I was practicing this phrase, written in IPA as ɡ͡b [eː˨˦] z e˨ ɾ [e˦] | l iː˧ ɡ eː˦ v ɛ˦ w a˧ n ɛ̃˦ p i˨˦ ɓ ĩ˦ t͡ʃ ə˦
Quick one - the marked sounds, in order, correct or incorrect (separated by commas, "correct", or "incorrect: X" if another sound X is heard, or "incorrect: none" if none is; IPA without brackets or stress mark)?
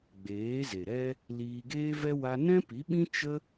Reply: correct, incorrect: ɛ˦